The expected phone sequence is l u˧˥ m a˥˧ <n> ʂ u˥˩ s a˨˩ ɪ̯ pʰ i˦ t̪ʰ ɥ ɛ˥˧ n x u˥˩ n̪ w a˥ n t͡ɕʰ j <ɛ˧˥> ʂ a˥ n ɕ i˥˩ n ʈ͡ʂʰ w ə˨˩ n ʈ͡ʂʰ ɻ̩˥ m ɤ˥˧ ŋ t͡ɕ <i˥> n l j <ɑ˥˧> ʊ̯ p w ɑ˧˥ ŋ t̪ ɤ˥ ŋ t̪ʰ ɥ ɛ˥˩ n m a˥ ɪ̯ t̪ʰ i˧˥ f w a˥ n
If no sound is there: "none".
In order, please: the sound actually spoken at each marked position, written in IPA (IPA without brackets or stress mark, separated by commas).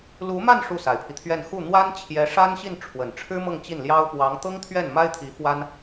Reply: n, ɛ˧˥, i˥˩, ɑ˥